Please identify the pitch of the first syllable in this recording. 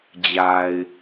low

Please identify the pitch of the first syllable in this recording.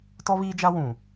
high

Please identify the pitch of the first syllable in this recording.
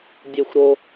low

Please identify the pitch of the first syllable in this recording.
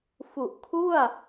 low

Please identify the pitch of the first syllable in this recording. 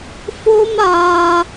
high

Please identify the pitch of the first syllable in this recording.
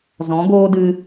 rising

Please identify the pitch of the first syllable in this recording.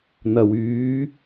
low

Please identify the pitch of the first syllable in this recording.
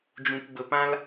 low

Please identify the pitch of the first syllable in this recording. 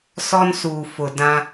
high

